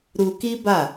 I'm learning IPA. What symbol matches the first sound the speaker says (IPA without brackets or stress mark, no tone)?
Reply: ɾ